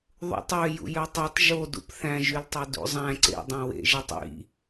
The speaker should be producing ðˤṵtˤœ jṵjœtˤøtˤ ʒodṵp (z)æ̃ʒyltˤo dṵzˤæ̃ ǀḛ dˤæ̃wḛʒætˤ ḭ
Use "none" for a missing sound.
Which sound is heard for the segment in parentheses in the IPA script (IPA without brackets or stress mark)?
θ